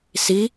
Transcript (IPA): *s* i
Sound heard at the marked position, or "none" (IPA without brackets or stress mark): s